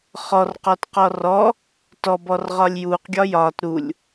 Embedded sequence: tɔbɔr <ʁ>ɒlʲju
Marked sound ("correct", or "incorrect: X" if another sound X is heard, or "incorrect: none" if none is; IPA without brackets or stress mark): correct